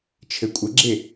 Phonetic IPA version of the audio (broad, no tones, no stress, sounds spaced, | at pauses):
t͡ʃʰ ɘ kʷʼ ɘ ɡ͡ǁ e